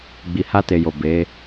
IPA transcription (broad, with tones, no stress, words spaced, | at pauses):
ɡ͡bi˨ha˧te˨jo˨ be˨˦